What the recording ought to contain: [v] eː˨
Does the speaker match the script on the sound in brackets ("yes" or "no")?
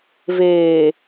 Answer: yes